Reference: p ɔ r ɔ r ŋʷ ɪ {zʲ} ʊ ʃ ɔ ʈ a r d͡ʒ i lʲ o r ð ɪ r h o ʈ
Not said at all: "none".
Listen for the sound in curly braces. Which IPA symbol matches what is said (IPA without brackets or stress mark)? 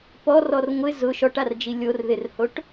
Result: z